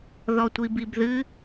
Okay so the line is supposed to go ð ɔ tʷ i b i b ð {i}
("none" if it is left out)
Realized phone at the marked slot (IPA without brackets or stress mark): ɨ